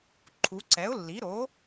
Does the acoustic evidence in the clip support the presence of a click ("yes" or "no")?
yes